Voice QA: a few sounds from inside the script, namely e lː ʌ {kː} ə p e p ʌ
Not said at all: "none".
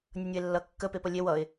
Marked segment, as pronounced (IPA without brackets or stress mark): kː